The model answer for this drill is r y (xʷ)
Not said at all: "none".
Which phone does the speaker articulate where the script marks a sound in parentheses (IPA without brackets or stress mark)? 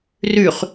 χ